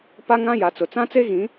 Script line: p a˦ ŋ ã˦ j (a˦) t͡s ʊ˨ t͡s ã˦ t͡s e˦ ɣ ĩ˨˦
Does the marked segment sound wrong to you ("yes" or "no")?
yes